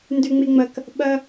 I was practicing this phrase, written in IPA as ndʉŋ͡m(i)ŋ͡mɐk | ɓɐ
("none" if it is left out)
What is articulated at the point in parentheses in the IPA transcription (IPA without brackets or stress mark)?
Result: i